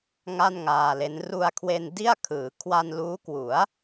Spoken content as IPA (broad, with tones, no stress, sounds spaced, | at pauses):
ŋ a˥˩ n ŋ aː˧ l e˦˥ n r u˧ a̯ kʰ w e˧ n d i˥˩ a̯ kʰ ɯː˩˦ kʰ w a˧ n l uː˦˥ k w u˩˦ a̯